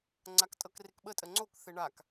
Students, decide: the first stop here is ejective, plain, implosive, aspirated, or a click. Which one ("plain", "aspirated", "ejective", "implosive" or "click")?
click